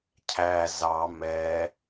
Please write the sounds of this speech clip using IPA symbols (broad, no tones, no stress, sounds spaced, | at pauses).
cʰ æ z ɑ m ɛ